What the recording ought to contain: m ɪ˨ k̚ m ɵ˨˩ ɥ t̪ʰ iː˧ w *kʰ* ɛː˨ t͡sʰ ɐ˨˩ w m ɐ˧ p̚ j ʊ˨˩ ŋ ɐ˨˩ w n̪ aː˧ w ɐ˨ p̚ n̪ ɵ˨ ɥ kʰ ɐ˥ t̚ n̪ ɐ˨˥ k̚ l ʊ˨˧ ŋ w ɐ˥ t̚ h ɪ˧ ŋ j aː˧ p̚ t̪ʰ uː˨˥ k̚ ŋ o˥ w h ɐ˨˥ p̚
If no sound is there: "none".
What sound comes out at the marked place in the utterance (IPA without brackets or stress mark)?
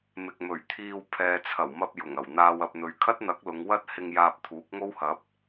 pʰ